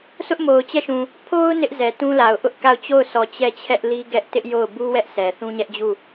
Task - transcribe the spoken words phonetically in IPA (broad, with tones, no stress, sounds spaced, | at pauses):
s ʊ˦ ʔ m o˨ ʊ̯ t͡ɕ ɛ˦˨ ʃ ũ˨ | pʰ o˦ ʊ̯ n ɪ˦ ʔ z ɛ˨ t ũ˦ l a˨ ʊ̯ ʔ ʊ˦ ʔ k a˦˨ ʊ̯ t͡ɕ o˦˨ ʊ̯ s ɔ˨ t͡ɕ ɛ˦˨ t͡ɕʰ ɛ˦ ʔ l i˦ ɡ ɛ˦ ʔ t ɪ˦ ʔ j o˦˨ ʊ̯ b u˦ w ɛ˦ ʔ s ɛ˨ θ ũ˦ ɲ ɛ˦ ʔ d͡ʑ u˦˨